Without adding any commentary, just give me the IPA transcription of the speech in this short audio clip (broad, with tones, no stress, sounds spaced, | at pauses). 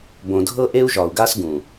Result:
b õ˨ dʱ ɤ˦ ʔ e˦ u̯ ʒ ɒ˨ u̯ ɡ a˦ s ɡ ũ˨